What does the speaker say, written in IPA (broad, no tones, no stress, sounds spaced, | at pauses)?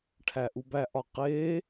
ʈʰ æ ʔ u b æ ʔ ɒ q e